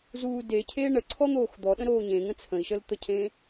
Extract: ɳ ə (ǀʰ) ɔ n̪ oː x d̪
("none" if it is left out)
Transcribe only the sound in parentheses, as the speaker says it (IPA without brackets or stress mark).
ǀʰ